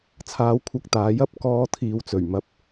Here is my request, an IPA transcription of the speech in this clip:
t͡sʰ aː˧ w kʷʰ ɐ˧ k̚ t̪ aː˨˧ j ɐ˥ p̚ k ɔː˧ t̪ʰ iː˨ w t͡s ɵ˨˩ ɥ m ɐ˨˥ p̚

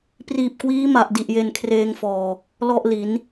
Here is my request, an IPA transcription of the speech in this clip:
p r iː˨˩ p̚ k w iː˦˥ m a˨˩ ʔ d i˨˩ ʔ j e˧ n kʰ r eː˧ ŋ f ɔː˨˩ | l ɔ˥˩ ʔ l i˩˦ n

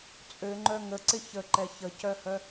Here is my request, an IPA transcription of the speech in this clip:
t͡sʼ ø ŋ͡ǃ œ ŋ ə ǀ ɪ ç ə ǃ ɛ ç ə c œ h œ

